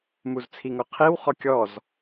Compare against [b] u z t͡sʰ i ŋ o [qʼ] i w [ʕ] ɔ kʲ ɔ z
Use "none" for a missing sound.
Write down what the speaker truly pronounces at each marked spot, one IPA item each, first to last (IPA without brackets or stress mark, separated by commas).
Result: m, qʰ, χ